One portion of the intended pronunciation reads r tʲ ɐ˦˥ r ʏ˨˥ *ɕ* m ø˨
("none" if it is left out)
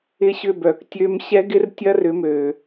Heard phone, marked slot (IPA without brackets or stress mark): none